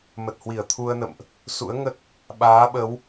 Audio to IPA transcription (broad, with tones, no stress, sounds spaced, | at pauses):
m ə˨˩ t̚ h w i˧˩ ə̯ t̪ʰ u˧ ə̯ n ə̰˧˨ m ʔ | s ṵ˧˥ ə̯ ŋ ə˦˥ t̚ | ɓ aː˨˦ ɓ ə˨˦ w